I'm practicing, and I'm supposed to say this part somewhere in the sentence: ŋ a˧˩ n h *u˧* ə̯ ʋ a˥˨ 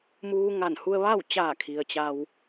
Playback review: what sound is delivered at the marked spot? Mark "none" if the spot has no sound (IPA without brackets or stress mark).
u˧